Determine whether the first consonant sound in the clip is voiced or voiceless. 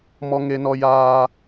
voiced